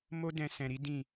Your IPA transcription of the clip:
m o˦ d ɛ̃˧ s ɛ̃˧ ɾ i˦ d ĩ˦˨

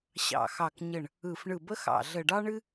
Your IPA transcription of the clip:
ɕ ɑ̰˧˩ x ɑ˧˩ k ɲ ə˧˩ ɳ | ɯ˧˩ f ɳ ɯ˧˩ b ə˥ x ɑ̰˧˩ ɮ ə˧˩ ɖ ɑ˥ ɳ ɨ˥

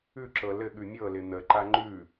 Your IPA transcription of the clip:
ʉ ǁ ɤ l ɘ ɠ ʉ mʲ ɤ l ɪ n̪ ə ǃ a ŋ͡ǃ ʉ

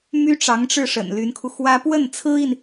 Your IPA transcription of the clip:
m y˥ ʈ͡ʂ ɑ˧˥ ŋ ʈ͡ʂ ɻ̩˥˩ ʂ ə̰˨˩ n l y˧˥ n kʰ u˧ x w ä˥ p w ə˥˩ n t͡sʰ ɹ̩˥ i˨ n

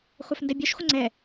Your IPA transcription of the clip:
χʷ œ f n d ɛ bʲ œ ʃ χʷ ə ŋ͡ǀ ɛ

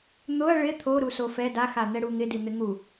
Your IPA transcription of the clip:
n̪ ʊ ɐ̯ ɭ ɪ t̪ʰ o ɾ u s o f ɛ d a x a n̪ ɛ ɽ u ŋ ɪ d i n̪ ɪ ŋ u

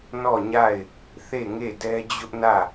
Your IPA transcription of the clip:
n ɔ˦˨ ɲ a˦˨ ɪ̯ | θ e˦˨ ŋ e˦˨ d ɛ˦ d͡ʑ ʊ˦ ʔ n ä˦˨

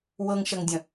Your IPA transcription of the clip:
w ɤ ŋ ʃ ɐ ŋ dʲ ə̃

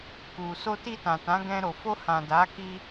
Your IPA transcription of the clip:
k u˨ s o˧ t i˧ t ã˨ t ã˨˦ ɡ ɛ̃˧ ɾ o˨ f o˧ h ã˨ d a˨˦ k i˧

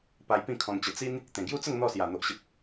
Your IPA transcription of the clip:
p a˧ j p ĩ˥˧ kʰ ɔ̃˧ n t͡ɕ ə˧ t͡s i˦ n | t̪ ẽ˨˩ ɡ j u˥˧ t͡s ə˥˧ ŋ n̪ ɔ˥˧ s j a˨˩ n̪ o˨ ʔ ɕ ə˨ p̚

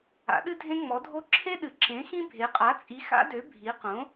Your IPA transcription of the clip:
a̰˩˥ ɗ ɨ˦ dʱ ẽ˦ ŋ͡m ɔ˩˥ dʱ o˦ ǁʰ e˦ ɗ ɨ˩˥ ǁ ẽ˩˥ x ĩ˦ bʱ e˩˥ qʼ a˩˥ t͡sʼ i˩˥ x a̰˦ d ø˩˥ bʱ i˩˥ q õ˩˥

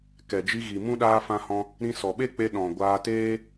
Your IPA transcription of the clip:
k ɛ˨ d͡ʒ i˧ ɣ i˨ m ũ˦ ɗ aː˧ f ã˧ h ɔ̃˧ | ɾ ĩ˧ s ɔ˨ ɓ e˦ k͡p e˧ ɗ ɔ̃˨ ɡʷ aː˧ t eː˦

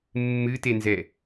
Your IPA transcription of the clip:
mː ɨ t e n z ɛ

